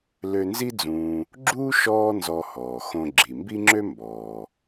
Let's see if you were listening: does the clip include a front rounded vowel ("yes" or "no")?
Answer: yes